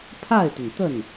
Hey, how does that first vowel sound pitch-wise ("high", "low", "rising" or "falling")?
falling